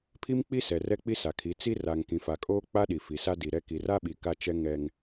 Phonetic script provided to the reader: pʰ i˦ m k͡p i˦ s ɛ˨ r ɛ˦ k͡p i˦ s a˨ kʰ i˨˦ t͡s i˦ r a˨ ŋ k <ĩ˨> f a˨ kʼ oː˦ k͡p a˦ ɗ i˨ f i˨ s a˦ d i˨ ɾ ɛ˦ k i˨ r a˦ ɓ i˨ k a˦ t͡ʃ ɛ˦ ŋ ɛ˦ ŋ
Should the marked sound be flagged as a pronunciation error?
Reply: no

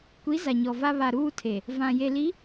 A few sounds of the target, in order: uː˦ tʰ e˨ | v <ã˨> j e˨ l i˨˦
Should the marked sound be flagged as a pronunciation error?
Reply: no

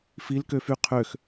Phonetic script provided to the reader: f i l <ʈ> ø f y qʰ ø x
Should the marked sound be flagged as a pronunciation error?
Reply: yes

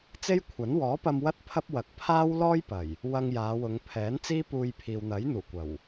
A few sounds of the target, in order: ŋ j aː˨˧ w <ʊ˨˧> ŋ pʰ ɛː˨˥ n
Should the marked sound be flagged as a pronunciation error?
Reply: no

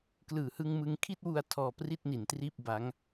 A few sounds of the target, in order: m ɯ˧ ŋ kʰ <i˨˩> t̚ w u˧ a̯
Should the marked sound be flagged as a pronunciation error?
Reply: yes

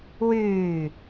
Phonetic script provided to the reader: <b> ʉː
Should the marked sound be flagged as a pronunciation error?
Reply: yes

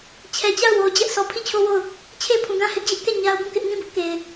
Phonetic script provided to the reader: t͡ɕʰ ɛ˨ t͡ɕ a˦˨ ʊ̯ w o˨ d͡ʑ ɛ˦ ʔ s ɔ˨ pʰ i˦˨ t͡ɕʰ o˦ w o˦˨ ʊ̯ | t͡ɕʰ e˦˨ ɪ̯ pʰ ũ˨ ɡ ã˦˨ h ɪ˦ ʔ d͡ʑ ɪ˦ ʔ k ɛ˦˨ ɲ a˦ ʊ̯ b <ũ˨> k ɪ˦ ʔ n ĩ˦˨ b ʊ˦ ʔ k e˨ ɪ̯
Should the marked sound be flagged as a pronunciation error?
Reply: yes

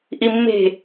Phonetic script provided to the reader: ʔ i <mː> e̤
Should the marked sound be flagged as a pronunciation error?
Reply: no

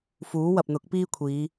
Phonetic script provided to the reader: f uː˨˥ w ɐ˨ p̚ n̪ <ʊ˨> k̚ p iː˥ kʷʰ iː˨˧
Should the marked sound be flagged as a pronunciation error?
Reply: yes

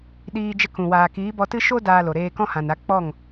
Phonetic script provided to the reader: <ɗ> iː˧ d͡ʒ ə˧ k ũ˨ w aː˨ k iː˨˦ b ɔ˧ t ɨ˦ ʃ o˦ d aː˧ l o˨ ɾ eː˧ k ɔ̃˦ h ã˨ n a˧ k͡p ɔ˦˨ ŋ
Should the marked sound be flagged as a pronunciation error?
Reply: no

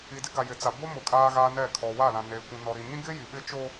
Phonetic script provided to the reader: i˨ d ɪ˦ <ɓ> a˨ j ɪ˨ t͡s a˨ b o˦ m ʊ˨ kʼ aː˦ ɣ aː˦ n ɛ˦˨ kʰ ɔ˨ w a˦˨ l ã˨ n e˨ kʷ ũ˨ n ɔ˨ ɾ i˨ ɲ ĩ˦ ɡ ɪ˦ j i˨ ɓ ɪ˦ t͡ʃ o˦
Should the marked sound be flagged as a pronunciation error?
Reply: yes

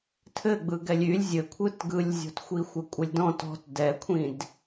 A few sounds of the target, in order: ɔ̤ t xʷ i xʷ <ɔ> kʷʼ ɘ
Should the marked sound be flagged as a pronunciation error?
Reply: yes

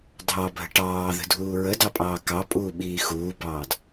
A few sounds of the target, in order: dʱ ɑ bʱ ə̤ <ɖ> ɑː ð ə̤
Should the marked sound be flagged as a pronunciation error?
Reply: yes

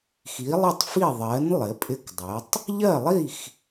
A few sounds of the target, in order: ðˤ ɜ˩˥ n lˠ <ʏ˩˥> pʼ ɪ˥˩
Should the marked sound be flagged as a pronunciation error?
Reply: yes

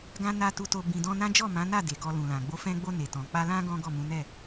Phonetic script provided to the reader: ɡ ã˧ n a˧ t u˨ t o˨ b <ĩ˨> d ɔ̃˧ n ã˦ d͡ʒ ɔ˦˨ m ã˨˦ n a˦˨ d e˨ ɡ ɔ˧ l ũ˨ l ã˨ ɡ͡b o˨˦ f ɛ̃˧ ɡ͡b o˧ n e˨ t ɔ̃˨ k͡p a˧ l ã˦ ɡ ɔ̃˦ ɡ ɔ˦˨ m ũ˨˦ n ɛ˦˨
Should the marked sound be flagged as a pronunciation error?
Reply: no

